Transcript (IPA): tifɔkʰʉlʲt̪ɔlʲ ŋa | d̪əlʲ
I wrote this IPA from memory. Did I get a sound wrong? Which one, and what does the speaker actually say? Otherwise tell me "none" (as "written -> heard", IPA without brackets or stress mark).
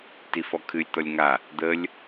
ʉ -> ɨ